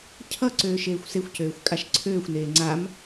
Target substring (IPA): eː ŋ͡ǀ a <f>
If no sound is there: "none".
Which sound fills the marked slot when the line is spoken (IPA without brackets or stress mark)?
m